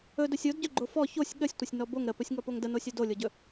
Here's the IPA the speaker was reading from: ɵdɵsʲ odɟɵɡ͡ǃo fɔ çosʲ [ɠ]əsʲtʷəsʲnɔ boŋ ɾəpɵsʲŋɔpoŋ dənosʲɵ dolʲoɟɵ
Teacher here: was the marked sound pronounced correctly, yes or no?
yes